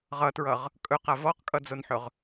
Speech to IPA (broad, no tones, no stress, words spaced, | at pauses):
ʁʌtɹʌʁ | kʼɵqa vɔqkʼʌd͡zonħɵʁ